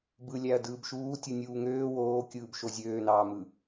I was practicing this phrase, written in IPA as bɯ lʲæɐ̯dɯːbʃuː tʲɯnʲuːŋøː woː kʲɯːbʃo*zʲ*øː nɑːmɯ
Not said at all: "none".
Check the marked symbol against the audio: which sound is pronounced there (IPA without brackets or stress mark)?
zʲ